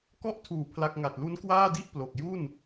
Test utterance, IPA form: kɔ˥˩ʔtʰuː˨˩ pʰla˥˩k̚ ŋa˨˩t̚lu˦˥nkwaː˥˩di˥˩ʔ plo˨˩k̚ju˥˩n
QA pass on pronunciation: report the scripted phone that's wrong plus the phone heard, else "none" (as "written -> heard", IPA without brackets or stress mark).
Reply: none